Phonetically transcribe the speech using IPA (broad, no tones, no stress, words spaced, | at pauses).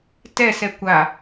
tɛsɛ kʷa